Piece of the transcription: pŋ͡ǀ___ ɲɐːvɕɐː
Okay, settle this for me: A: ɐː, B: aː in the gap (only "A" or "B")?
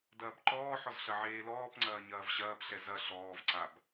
A